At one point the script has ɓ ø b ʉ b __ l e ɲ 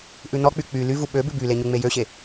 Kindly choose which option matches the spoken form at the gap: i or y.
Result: y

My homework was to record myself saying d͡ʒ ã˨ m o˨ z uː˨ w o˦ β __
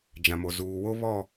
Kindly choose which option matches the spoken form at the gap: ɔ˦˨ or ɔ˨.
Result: ɔ˦˨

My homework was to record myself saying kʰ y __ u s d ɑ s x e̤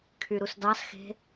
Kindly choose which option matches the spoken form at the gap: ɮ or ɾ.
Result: ɾ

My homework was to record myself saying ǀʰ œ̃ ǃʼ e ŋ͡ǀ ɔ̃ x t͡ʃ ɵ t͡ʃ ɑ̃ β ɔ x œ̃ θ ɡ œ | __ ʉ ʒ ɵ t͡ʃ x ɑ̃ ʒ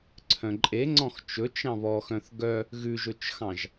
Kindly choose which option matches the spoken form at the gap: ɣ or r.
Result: ɣ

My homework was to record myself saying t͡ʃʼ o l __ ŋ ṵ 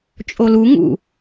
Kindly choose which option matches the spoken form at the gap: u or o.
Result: u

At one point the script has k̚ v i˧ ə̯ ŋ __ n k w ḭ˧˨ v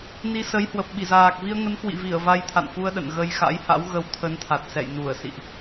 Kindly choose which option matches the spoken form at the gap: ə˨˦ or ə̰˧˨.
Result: ə˨˦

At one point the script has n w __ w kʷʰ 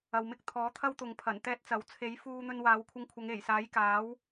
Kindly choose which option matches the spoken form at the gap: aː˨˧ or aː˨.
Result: aː˨˧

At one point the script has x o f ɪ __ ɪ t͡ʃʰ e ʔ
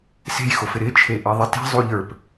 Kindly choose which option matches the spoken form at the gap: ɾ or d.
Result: ɾ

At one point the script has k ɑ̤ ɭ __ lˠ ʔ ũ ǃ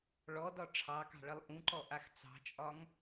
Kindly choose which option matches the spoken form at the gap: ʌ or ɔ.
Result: ʌ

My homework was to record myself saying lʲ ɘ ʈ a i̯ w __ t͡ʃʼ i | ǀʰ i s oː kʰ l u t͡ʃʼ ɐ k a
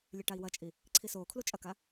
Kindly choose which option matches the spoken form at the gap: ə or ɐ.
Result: ɐ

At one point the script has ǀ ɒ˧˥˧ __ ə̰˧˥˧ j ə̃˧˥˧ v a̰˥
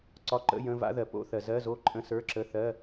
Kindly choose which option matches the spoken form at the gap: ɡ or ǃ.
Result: ǃ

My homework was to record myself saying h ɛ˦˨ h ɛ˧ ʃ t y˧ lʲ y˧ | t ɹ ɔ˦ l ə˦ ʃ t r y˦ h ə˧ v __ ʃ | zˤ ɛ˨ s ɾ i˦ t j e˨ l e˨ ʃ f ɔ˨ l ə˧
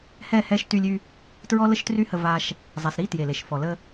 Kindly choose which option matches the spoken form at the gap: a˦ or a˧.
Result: a˧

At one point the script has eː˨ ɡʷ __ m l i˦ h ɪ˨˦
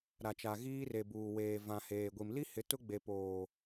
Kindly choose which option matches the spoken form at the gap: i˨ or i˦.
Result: i˨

